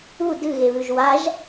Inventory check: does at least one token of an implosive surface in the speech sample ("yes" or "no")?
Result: no